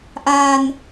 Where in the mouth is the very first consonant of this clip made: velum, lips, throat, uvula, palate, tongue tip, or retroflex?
throat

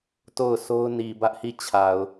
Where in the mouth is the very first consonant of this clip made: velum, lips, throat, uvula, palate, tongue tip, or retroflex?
tongue tip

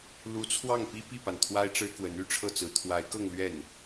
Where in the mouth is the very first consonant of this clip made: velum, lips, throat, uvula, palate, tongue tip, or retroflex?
tongue tip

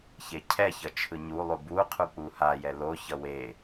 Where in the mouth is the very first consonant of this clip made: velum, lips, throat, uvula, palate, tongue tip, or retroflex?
palate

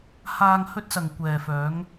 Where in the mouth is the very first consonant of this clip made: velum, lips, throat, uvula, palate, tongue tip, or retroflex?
throat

